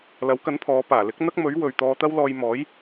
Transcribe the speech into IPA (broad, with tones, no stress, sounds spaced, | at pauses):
l ɐ˨˥ w k ɐ˨˥ n pʰ ɔː˨˧ p aː˨˩ l ɪ˨˥ k̚ n̪ ɐ˥ k̚ m ɵ˨˥ ɥ w ɵ˨ ɥ t̪ ɔː˧ t̪ ɐ˥ w l ɔː˧ j m ɔː˨˥ j